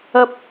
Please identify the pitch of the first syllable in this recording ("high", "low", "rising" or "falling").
high